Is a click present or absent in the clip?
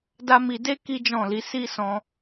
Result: absent